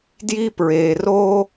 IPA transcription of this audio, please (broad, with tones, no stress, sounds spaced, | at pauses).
d j i˦ p ɹ e˩ r o˥